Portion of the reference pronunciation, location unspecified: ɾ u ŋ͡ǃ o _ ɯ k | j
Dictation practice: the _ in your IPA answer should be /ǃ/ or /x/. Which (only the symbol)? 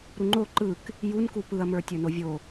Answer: ǃ